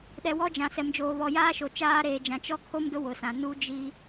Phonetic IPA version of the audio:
ɗɛ˨wɔ˦ d͡ʒã˨sɛ˨md͡ʒoː˨βɔ˨ jaː˦ʃo˨ t͡ʃaː˦ɾeː˨d͡ʒã˨ t͡ʃɔ˦kʰo˦m dʊ˦ wʊ˨sã˨ nu˦d͡ʒi˦

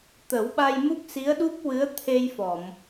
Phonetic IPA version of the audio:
t̪ə˨˩˦wɓa˧jmu˦˥k̚ si˧˥ə̯ɗu˦˥p̚wɨ˧˥ə̯ t̪ʰe˧j fɔ˨˩˨m

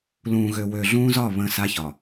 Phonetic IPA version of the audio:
lũː˨ɣø˨ wø˨ɮũː˦zɒ˦˨ βə̃ː˦sa˦çɒ˨

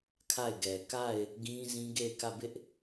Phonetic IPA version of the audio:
kʰa˦˨ɪ̯ɡɛ˨ ka˦˨ɪ̯ | ɡĩ˦zĩ˦ ɡe˦˨ɪ̯kä˦˨bɪ˦ʔ

